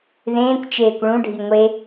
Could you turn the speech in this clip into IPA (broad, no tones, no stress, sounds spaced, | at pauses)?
ð ẽː kʷ t͡ʃ eː kʷ ɭ ũ ɖʱ i ŋʷ e